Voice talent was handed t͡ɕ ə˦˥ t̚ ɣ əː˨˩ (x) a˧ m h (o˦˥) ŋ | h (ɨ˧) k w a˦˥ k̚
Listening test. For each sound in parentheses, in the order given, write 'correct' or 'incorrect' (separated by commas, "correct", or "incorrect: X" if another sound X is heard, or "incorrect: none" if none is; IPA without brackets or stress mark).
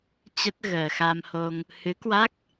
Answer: correct, incorrect: o˧, incorrect: ɨ˨˦